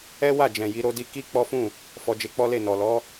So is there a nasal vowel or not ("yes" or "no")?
yes